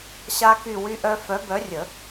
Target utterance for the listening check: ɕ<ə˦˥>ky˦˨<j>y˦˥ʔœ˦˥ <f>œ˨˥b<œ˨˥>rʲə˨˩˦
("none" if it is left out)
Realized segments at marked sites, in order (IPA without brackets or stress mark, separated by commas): a˦˥, w, f, œ˨˥